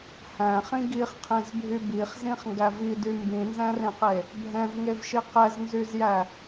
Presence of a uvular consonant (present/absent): present